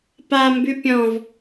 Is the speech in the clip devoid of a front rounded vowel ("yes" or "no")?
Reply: no